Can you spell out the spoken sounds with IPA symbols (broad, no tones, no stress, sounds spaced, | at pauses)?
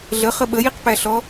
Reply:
ɮ ə χ ə ɓ ə j i q p æ ɬ ɔ